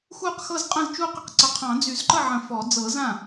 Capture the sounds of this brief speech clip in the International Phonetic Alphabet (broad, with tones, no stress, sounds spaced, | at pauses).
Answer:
x u˥˩ q x ɤ˥˩ z qʼ ə̃˥˩ z t͡ʃ u˥˩ q ə˥˩ q ǀ ə˨˩˦ qʰ ɑ̃˨˩˦ d͡z y˨˩˦ z ǃ ə˥˩ ʕ ə̃˨˩˦ f ɔ˨˩˦ d͡z ɤ˨˩˦ z ã˥˩